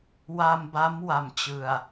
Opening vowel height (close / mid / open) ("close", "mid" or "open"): open